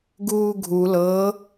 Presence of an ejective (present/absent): absent